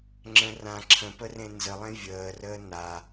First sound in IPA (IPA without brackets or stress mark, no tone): ŋ͡ǁ